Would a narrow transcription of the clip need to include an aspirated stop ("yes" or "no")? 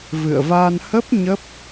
no